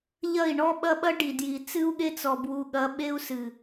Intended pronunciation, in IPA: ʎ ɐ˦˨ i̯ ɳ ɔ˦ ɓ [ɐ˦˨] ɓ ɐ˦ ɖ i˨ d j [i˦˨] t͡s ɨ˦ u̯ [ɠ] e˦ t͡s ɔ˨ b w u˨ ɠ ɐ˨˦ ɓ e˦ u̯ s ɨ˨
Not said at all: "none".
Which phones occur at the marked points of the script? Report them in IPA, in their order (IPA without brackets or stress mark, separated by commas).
ɐ˦, i˨, ɠ